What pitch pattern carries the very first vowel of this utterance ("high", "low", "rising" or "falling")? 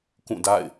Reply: falling